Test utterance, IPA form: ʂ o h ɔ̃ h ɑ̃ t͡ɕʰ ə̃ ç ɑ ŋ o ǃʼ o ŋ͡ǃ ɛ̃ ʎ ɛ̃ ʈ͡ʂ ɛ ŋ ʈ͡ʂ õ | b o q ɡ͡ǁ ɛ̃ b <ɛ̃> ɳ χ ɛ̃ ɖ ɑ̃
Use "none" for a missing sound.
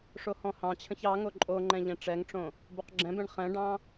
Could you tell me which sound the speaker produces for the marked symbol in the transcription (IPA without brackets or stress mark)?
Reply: ɛ̃